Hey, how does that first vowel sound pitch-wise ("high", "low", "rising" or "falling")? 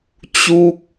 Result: falling